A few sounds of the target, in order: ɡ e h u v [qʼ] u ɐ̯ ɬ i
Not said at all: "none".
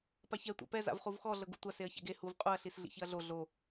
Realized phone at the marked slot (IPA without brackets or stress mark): qʼ